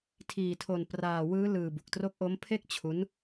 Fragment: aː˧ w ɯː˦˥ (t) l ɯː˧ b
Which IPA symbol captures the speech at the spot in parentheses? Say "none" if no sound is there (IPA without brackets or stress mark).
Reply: none